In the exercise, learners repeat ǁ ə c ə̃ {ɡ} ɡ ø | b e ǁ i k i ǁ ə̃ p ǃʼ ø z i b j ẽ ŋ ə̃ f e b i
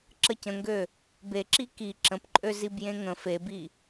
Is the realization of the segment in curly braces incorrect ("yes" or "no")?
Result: yes